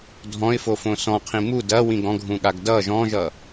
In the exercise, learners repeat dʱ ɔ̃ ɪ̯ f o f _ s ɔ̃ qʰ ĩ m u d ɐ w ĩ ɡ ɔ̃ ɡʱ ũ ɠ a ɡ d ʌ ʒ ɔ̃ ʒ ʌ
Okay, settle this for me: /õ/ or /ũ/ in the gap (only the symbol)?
õ